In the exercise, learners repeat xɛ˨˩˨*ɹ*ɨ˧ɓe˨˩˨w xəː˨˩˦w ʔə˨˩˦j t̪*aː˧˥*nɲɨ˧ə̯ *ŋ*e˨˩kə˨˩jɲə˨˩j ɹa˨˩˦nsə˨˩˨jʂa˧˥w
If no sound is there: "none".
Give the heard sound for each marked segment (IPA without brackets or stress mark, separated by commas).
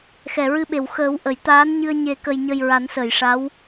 ɹ, aː˧˥, ɲ